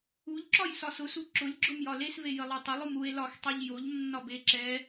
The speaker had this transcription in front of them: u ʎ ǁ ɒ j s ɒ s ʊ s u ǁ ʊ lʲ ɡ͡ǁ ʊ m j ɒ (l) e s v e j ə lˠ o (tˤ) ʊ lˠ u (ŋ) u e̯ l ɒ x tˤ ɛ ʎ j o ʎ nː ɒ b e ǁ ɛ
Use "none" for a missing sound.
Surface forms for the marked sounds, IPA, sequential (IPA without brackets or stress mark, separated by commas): l, tˤ, m